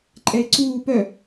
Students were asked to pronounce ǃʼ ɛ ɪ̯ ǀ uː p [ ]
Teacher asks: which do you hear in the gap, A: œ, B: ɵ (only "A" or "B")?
A